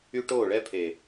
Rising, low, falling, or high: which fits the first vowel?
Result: high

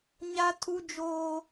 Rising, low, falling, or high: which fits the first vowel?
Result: high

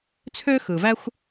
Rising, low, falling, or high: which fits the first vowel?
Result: high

